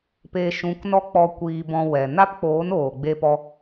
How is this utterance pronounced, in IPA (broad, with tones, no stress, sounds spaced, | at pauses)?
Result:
p e˧ ʃ ũ˨˦ k n ɔ˦ k͡p ɔ˧ kʷ iː˧ b ɔ̃˧ w ɛ˨ n a˦ p k͡p oː˨˦ n oː˨ ɡ͡b e˧ p ɔ˧